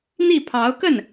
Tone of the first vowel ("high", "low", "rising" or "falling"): falling